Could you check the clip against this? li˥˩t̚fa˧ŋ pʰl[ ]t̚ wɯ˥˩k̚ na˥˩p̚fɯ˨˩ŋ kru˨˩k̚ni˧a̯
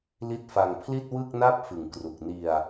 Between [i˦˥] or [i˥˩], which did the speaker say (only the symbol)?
i˥˩